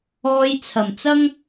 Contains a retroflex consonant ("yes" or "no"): no